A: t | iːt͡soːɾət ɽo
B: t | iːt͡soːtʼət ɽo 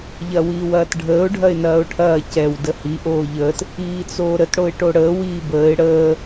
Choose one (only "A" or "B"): A